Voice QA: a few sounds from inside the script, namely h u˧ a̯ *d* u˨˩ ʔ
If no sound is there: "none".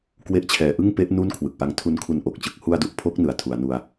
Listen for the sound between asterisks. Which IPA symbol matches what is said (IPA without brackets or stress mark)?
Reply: d